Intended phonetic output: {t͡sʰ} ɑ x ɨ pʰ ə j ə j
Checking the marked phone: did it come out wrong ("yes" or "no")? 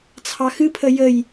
no